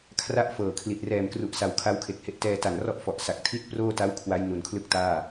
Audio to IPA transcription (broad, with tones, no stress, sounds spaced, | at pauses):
kʰ r a˥˩ ʔ f ɤː˨˩ kʰ l i˨˩ t̚ r ɛː˨˩ m k r u˨˩ ʔ s a˨˩ w kʰ a˦˥ w kʰ e˨˩ k̚ h e˦˥ ʔ t ɛː˧ t a˨˩ n r ɔ˥˩ ʔ f ɔ˨˩ ʔ s a˨˩ k̚ tʰ i˥˩ t̚ p r oː˥˩ t a˦˥ w kʰ w a˦˥ j n u˨˩ n kʰ l ɯ˥˩ k̚ t aː˥˩